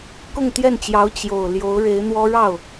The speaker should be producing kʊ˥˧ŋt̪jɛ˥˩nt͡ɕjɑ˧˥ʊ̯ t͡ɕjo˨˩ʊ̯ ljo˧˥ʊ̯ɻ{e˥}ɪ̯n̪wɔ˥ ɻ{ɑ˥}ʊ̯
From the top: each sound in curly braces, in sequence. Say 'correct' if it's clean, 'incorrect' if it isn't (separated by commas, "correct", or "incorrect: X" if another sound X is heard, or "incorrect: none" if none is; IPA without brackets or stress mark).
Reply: incorrect: e˧˥, incorrect: ɑ˥˩